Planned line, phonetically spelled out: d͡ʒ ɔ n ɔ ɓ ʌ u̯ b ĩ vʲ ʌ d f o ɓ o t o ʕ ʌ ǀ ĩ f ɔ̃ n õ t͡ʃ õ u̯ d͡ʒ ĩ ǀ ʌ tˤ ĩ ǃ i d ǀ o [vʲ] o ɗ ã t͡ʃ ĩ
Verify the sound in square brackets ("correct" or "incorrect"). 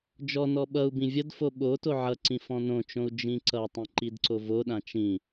incorrect